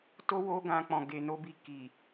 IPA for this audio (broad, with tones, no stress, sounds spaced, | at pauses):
t o˦ w o˧ ɡ ã˧ k͡p ɔ̃˨ ɡ e˨ n o˧ b i˨ k i˨